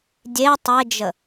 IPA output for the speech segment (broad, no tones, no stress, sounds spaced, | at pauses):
dʲ e tˤ e d͡ʒ ə